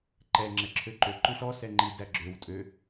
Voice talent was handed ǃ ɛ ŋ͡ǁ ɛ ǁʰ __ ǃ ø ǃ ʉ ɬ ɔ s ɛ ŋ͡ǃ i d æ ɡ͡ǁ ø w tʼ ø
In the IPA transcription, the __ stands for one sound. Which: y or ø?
ø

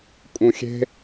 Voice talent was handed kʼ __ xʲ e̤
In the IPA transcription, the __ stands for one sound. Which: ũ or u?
ũ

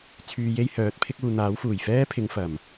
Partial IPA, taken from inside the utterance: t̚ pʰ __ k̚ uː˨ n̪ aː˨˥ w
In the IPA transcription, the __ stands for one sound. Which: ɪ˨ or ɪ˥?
ɪ˥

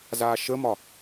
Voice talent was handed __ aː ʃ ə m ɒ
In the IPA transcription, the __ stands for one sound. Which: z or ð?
z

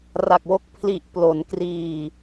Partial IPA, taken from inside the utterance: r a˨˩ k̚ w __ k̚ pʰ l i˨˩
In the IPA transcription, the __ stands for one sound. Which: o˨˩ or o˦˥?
o˦˥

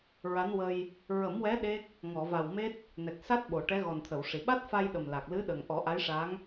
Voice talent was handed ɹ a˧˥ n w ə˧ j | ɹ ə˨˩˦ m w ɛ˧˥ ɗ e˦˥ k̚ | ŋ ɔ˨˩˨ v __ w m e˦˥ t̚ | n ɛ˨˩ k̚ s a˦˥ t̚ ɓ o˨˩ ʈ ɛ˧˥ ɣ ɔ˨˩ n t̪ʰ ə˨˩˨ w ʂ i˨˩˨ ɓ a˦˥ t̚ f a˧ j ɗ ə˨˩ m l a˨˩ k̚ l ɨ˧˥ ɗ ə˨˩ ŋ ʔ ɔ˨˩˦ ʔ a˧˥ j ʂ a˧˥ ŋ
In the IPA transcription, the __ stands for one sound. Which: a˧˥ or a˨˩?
a˨˩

